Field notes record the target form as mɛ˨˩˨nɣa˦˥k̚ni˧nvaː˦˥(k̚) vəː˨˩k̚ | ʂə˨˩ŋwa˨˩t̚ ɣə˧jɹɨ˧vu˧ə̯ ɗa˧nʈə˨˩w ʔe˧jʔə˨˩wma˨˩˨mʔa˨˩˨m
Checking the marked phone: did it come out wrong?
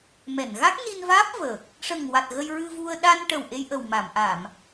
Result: yes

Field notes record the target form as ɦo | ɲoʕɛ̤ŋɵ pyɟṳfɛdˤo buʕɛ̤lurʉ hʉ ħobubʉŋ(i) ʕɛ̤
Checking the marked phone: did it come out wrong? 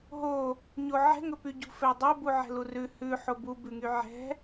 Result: yes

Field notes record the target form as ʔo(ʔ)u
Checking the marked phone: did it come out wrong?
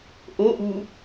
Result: no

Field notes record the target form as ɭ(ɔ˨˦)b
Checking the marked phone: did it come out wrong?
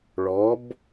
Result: no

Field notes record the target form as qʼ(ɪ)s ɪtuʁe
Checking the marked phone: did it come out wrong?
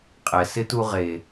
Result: yes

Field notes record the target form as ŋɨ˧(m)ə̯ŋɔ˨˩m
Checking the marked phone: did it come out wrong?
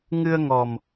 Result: yes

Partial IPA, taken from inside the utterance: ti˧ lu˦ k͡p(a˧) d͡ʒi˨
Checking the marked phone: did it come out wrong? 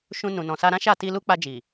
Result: no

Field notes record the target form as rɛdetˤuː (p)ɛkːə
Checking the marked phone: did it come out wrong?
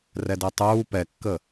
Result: no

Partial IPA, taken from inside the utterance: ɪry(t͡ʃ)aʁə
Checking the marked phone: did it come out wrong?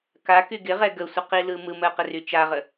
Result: no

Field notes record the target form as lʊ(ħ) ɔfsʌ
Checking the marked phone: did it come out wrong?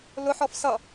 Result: no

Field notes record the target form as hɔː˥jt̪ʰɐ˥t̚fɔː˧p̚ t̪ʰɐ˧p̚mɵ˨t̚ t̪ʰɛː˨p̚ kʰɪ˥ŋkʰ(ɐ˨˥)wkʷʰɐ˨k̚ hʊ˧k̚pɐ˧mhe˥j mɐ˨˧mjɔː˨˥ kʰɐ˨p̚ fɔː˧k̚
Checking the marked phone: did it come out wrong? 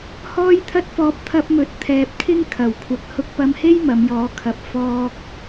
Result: yes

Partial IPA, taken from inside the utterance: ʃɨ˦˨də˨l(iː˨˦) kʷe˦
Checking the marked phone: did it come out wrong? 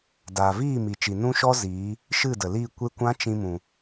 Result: yes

